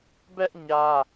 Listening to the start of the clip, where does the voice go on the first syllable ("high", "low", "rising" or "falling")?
high